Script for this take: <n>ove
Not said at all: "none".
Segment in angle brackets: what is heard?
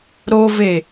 ɾ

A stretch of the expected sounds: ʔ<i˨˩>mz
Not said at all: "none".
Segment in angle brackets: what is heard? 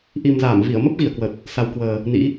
i˨˩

